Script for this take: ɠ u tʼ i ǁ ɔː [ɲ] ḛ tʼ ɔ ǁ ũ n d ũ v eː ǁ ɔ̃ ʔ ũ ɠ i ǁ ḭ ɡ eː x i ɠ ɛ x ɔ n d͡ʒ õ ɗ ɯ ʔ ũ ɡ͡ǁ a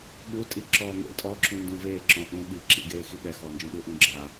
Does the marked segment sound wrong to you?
yes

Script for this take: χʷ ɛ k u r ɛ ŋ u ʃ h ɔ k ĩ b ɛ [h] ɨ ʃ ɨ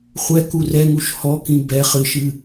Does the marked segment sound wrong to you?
yes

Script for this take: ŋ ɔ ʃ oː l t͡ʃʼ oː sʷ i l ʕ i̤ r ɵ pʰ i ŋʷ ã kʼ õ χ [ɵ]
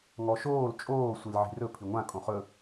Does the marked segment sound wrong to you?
no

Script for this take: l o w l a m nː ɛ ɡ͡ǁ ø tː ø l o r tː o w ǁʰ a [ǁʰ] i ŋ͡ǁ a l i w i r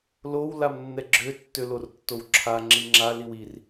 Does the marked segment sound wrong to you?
yes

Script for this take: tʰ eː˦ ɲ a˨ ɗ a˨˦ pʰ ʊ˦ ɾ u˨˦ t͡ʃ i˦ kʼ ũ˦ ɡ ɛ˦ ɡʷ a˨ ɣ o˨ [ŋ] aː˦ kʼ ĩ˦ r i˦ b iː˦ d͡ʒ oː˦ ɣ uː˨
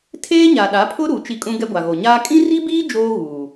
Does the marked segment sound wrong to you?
yes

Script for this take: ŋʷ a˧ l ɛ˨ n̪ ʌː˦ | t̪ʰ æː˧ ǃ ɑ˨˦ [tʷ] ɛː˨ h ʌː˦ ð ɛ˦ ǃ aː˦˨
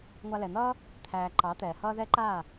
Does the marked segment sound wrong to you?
yes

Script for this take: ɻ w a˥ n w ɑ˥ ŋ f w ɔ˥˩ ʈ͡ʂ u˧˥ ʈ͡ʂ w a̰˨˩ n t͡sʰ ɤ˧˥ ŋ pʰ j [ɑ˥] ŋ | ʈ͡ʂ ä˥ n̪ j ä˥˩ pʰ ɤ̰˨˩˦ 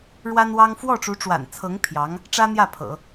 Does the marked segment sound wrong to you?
yes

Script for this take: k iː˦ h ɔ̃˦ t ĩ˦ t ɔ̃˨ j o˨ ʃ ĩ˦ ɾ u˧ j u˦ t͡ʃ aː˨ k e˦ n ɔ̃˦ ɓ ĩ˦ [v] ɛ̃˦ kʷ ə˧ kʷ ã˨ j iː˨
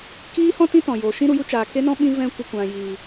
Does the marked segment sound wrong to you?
no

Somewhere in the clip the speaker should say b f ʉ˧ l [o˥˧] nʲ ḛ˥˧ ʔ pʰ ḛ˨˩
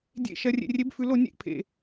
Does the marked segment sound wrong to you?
no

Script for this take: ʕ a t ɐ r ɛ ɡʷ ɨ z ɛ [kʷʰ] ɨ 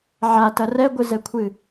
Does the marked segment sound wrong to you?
no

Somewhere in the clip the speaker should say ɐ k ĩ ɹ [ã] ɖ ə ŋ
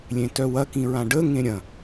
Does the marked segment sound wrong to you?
no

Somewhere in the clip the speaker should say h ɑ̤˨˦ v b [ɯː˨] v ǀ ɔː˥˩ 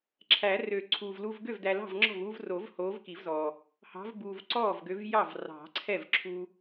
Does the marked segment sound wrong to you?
yes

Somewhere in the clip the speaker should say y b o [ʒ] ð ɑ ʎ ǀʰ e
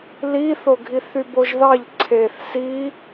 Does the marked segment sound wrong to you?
no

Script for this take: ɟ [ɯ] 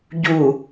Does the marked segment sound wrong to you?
yes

